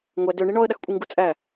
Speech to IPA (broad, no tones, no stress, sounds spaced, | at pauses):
ŋʷ æ d ø ɳ i ɳ ɔ ə̯ ɗ a x kʷʼ i ŋ ɡ u t͡sʼ æ